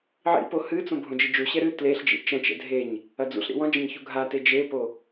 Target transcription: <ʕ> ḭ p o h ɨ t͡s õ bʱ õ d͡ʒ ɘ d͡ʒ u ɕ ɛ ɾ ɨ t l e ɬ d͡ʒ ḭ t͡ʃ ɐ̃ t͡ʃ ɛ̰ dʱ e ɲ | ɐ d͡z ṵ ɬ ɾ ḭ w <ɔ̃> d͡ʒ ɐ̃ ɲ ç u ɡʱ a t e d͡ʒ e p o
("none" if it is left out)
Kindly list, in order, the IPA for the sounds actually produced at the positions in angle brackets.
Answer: ʕ, ɔ̃

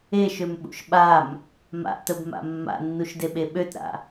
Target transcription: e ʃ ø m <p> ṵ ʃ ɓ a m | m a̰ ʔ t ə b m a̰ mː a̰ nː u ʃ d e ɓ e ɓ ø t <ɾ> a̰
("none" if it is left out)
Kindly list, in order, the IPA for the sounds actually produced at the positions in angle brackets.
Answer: ɓ, ɾ

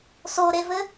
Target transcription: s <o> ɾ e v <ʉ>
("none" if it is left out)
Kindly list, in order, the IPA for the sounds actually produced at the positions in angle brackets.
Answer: o, ɘ

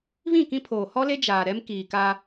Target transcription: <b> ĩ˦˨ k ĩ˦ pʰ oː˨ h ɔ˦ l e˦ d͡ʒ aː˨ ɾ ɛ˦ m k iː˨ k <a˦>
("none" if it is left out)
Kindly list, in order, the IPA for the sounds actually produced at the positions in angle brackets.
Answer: β, a˦

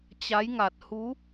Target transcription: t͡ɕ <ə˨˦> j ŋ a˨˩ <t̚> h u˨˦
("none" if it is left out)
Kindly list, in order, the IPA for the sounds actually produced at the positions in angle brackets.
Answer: a˨˦, t̚

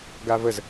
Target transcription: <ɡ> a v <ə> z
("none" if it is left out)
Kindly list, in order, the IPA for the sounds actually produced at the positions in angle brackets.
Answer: ɡ, ə

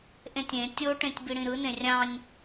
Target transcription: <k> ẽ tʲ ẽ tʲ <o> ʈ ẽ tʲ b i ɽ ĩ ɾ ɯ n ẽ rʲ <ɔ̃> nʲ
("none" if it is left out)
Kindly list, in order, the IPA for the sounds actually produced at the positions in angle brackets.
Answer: ʔ, o, ɑ̃

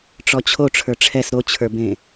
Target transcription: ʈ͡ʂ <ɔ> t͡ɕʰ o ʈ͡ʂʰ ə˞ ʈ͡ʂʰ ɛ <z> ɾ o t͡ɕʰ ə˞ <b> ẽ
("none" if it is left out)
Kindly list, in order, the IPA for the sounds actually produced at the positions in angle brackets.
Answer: ɔ, s, b

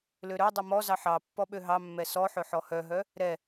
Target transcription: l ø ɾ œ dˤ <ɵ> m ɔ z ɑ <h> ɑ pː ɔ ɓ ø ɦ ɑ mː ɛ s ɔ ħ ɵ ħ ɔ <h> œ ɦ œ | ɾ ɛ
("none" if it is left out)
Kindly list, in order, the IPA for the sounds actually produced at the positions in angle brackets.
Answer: ɵ, ħ, h

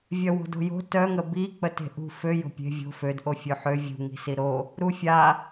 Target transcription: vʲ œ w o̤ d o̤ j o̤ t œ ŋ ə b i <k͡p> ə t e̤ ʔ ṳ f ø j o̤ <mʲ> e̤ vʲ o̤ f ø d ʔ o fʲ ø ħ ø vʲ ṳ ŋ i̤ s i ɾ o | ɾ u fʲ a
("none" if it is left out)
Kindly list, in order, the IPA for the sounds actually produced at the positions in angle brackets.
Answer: k͡p, pʲ

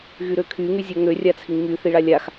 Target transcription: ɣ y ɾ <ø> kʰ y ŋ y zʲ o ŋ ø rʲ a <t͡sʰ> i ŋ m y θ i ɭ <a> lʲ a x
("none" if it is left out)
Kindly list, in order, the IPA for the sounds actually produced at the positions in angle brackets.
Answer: ø, t͡sʰ, a

